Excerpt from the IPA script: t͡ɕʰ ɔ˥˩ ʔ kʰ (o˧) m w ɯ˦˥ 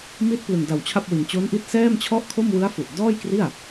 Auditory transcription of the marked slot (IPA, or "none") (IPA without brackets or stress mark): o˥˩